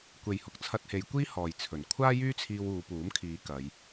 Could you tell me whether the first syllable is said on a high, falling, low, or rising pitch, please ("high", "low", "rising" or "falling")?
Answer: low